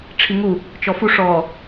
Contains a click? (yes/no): no